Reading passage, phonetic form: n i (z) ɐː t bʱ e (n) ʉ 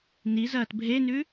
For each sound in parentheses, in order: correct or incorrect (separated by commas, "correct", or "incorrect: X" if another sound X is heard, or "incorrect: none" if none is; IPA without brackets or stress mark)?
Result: correct, correct